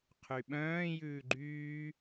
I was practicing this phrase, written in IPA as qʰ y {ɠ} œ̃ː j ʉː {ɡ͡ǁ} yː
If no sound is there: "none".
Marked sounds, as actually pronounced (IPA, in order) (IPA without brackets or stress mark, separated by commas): ɓ, ɡ͡ǃ